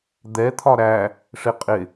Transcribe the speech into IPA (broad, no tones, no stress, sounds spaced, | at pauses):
d̪ ɛ t̪ʰ ɒ ɾ æ | ʂ ɪ qʼ ɪ